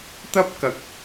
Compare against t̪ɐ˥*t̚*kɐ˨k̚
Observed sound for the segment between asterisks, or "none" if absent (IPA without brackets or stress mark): p̚